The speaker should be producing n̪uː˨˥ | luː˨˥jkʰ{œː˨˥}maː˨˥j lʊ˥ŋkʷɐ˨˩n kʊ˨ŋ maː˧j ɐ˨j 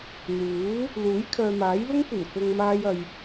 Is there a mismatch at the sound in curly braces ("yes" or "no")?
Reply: yes